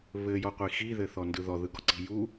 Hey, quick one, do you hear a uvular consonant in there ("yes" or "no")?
yes